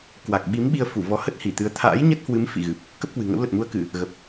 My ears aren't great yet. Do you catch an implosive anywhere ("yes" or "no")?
yes